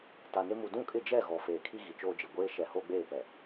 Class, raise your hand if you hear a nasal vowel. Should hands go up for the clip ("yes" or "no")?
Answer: yes